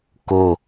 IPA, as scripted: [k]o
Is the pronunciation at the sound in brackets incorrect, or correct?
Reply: correct